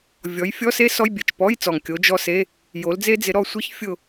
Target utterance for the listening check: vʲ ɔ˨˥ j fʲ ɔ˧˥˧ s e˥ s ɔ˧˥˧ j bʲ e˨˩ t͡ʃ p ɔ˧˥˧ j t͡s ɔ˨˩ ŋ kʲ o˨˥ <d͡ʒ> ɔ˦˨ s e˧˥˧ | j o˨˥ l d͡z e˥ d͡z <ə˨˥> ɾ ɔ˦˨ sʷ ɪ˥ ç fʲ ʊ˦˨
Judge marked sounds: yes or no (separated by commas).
yes, no